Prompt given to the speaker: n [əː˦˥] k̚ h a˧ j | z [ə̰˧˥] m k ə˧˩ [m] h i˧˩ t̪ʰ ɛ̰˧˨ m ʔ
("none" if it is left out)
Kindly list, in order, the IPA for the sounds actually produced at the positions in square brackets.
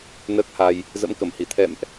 əː˦˥, ə̰˧˥, m

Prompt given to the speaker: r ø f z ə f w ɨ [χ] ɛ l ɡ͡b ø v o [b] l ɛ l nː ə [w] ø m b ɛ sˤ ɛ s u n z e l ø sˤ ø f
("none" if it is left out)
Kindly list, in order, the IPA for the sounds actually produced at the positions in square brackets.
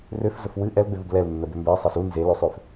ʔ, b, b

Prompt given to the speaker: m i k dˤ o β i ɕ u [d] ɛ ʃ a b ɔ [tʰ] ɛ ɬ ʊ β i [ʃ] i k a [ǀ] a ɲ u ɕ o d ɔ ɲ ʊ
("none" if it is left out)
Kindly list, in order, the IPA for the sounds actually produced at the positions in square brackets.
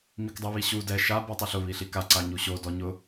d, tˤ, ɬ, ǀ

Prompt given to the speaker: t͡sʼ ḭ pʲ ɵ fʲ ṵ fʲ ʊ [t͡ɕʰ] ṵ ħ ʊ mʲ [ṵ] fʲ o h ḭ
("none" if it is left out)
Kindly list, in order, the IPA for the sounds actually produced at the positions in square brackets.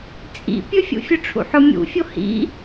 ʈ͡ʂʰ, ṵ

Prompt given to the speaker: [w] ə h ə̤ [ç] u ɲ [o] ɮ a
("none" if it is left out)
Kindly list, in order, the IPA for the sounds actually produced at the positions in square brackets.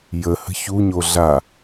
j, ç, o

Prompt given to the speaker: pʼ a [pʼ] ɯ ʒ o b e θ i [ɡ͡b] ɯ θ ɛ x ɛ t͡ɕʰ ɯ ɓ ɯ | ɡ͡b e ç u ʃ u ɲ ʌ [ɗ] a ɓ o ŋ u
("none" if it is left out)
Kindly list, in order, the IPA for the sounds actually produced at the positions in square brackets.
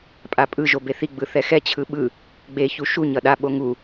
pʼ, ɡ͡b, ɗ

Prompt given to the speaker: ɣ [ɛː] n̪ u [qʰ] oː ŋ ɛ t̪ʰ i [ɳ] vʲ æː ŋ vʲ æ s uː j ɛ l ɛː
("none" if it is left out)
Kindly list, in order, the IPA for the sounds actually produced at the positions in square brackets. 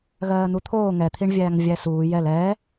ɜː, t̪ʰ, ɳ

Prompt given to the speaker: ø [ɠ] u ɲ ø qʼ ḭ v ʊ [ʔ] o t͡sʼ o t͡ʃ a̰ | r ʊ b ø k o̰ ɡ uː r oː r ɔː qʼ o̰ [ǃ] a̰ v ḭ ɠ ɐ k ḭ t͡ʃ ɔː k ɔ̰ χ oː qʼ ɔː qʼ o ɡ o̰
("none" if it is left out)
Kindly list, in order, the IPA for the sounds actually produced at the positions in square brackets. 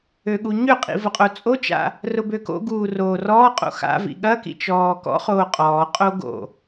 ɠ, qʼ, x

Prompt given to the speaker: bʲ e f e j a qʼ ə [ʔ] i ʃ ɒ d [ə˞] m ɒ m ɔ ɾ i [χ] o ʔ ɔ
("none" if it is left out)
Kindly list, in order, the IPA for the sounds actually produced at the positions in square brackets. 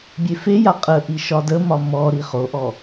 ʔ, ə, χ

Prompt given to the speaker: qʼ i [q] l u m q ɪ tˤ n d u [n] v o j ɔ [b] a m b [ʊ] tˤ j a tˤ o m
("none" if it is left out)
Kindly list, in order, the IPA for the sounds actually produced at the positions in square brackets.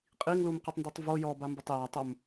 ŋ, tˤ, b, ʊ

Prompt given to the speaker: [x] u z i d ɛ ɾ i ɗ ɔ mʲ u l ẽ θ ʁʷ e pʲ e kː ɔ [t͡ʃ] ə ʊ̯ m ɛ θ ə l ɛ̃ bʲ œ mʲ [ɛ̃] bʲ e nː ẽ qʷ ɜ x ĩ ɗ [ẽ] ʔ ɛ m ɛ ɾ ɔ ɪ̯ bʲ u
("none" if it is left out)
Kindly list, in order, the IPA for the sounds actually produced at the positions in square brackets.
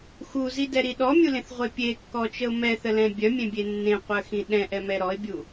x, t͡ʃ, ẽ, ɛ̃

